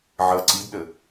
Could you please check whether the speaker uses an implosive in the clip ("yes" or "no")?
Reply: yes